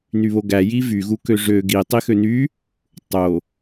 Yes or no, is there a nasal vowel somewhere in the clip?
no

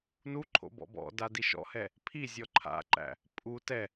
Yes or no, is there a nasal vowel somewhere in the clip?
no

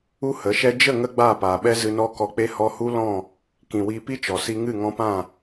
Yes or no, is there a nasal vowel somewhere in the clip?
yes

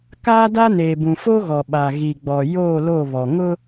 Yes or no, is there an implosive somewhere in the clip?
yes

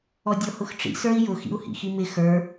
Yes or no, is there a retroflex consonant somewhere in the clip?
yes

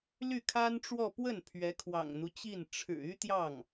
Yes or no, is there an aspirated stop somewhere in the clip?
yes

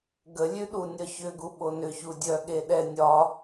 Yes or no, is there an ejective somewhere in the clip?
no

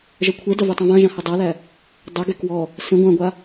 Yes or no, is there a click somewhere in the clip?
no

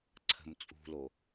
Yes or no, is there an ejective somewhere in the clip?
yes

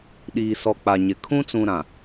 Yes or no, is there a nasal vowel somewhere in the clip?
yes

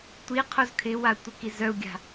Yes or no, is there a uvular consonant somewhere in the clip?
yes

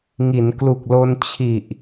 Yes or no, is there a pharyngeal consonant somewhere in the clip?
no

